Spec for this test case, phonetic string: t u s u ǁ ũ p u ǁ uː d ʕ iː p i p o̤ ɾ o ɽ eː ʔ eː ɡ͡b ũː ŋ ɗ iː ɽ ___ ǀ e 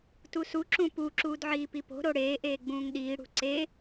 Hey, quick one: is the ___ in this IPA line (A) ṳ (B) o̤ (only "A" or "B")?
A